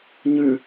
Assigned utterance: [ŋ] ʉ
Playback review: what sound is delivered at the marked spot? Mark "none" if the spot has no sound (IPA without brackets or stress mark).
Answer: ɲ